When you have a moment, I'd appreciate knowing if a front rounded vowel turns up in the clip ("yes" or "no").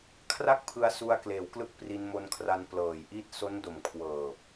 no